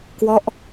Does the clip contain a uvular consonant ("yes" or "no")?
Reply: no